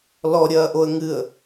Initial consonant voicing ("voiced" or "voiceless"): voiced